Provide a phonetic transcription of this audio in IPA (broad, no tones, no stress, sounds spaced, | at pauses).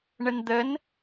ɳ ə n d̪ ə n